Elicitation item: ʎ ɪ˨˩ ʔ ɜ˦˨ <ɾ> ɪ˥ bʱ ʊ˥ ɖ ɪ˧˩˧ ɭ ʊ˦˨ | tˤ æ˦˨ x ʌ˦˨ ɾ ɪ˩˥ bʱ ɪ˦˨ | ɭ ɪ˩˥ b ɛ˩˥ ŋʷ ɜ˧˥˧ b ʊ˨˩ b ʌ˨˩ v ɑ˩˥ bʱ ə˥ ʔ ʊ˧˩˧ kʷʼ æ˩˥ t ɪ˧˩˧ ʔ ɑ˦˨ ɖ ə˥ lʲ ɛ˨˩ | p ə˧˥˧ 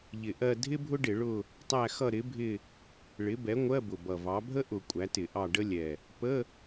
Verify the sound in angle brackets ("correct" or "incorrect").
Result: incorrect